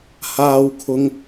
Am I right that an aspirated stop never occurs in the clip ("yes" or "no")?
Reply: no